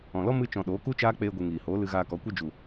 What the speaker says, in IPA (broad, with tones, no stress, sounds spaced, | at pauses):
ɔ̃˨ l ɔ˦ m ɨ˧ t͡ʃ ɔ̃˨ ɗ oː˨˦ k u˦ t͡ʃ aː˦ k͡p eː˧ ɡʷ ɨ˨ ŋ iː˨ h oː˨˦ l ɨ˧ ɣ aː˧ k ɔ˨˦ kʷ e˧ d͡ʒ u˨